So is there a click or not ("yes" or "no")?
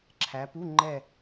yes